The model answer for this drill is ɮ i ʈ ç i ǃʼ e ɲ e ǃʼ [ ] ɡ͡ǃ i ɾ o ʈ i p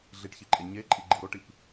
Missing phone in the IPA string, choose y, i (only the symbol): i